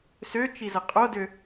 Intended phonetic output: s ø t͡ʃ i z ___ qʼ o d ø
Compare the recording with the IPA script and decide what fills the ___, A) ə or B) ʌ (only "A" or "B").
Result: A